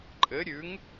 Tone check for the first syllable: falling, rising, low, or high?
rising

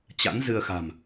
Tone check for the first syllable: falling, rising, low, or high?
rising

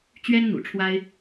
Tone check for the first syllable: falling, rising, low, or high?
high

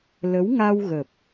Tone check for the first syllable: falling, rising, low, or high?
rising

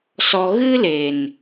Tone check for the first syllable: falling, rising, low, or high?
low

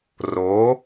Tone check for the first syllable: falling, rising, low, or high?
rising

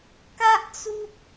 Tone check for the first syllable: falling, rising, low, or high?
high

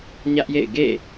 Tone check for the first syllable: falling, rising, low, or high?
high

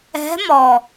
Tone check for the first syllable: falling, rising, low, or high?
rising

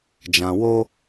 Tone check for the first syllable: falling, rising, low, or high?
low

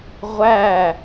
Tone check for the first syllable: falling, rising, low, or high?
falling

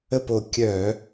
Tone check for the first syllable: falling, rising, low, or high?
falling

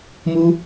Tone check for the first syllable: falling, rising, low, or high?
high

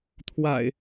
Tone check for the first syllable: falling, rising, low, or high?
low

